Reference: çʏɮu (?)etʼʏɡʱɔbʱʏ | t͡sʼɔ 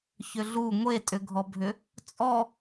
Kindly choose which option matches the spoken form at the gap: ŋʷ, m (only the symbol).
ŋʷ